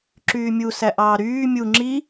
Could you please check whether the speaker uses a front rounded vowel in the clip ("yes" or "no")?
yes